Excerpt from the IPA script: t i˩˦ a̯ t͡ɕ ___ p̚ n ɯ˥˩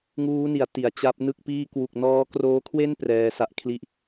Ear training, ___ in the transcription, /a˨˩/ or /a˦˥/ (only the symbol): a˦˥